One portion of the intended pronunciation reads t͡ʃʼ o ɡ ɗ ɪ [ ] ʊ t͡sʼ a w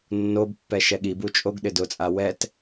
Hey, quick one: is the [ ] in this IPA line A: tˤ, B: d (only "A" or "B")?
B